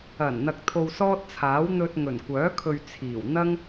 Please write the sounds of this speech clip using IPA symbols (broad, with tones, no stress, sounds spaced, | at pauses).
ɐ˨˩ n n̪ ɐ˨ k̚ t̪ʰ o˧ w s ɔː˥ t̚ t͡sʰ aː˨˥ w n̪ ɵ˧ t̚ ŋ ɵ˨˩ n kʷ œː˨˥ kʰ ɵ˨ ɥ t͡sʰ iː˨˩ w n̪ ɐ˥ ŋ